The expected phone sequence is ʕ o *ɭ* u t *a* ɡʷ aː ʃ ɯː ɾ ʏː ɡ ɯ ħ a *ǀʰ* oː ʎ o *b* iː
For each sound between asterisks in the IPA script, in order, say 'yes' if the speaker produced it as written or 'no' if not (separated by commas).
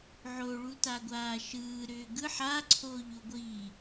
yes, yes, yes, no